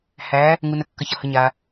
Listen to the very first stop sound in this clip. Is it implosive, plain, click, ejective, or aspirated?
plain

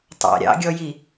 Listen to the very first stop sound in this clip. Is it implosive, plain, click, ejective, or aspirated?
plain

